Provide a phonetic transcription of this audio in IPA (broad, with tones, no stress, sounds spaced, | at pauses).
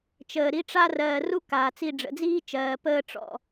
t͡ʃ əː˨ ɾ i˦ ʈ͡ʂ a˦ r ɜː˨ r u˦ k aː˨ t͡s i˦˨ ɖ͡ʐ ə̰˨˦ d͡z iː˦ t͡ʃ ɜː˨ p əː˦ ʈ͡ʂ ɔ̰˦˨